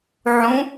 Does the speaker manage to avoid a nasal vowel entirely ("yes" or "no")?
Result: no